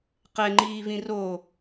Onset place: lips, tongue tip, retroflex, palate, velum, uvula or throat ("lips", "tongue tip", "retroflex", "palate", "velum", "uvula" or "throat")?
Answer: uvula